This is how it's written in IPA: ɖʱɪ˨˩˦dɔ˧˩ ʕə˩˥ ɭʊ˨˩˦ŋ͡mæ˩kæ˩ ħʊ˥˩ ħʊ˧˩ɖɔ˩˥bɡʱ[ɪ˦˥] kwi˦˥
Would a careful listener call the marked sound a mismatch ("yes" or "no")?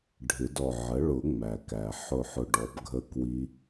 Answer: yes